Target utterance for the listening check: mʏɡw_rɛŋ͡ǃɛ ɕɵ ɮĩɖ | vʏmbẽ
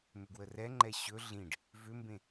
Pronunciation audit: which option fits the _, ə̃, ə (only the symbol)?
ə